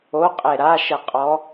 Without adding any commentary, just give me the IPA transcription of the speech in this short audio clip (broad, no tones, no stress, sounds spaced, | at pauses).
o qʼ e ɾ a ʃ ɘ qʼ ɔ